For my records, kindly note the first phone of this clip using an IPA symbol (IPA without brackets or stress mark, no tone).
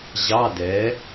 ʑ